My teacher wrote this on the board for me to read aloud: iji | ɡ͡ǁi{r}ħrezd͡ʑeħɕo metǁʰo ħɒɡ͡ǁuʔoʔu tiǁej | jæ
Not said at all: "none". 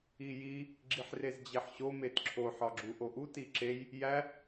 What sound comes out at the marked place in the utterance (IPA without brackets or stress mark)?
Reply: none